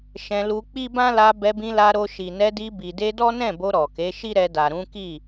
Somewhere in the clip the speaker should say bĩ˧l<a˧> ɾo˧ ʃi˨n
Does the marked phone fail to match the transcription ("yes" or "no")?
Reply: no